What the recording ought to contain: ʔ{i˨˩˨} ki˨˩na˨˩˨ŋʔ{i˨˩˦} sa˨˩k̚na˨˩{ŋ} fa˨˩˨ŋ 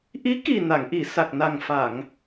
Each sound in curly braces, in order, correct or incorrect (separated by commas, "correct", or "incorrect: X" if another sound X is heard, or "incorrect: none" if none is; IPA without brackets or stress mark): incorrect: i˧˥, incorrect: i˨˩˨, correct